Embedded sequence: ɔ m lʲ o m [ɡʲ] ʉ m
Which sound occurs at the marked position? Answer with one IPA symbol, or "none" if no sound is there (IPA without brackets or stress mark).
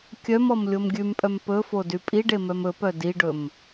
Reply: ɡʲ